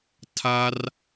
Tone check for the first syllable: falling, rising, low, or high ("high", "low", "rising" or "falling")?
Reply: high